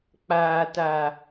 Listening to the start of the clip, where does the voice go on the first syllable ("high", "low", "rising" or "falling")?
low